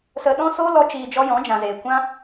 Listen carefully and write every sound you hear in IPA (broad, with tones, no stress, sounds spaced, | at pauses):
s ə˧ ɗ ɔ̃˦ s oː˦ l ɔ˦ t͡ʃ iː˧ d͡ʒ ɔ˦ j ɔ̃˨˦ d͡ʒ ã˨ z eː˨ kʷ ã˦